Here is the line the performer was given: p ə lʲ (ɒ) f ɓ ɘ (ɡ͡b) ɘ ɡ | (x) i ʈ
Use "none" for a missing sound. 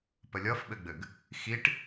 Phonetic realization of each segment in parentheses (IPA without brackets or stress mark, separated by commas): ʌ, ɡ͡b, x